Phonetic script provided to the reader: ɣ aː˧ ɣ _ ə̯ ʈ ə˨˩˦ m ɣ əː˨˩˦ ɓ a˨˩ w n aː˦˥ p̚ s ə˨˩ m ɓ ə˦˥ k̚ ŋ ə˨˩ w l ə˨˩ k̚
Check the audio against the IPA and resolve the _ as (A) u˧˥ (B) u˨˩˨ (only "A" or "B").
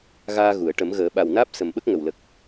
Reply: B